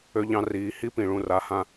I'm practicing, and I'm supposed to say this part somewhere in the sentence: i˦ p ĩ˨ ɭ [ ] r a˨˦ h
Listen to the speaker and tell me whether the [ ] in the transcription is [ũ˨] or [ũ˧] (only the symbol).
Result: ũ˧